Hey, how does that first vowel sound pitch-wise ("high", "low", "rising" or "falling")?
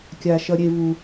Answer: low